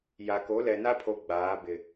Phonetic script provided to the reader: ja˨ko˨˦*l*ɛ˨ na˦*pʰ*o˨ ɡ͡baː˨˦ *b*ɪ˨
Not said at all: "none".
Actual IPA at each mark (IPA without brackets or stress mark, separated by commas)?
l, pʰ, b